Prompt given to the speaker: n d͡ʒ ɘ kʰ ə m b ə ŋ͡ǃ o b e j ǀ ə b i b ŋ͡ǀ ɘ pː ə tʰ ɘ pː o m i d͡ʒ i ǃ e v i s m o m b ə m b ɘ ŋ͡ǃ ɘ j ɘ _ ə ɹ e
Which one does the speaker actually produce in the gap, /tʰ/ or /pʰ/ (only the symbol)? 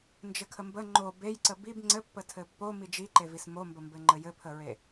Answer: pʰ